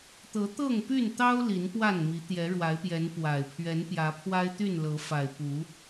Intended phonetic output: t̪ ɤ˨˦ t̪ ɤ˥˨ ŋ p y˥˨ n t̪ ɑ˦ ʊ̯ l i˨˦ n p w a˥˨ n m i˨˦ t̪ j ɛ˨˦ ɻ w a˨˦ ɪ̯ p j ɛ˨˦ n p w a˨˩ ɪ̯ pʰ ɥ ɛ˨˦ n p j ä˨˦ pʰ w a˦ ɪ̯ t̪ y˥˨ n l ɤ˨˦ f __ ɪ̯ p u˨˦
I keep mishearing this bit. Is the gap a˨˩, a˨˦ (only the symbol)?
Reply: a˨˩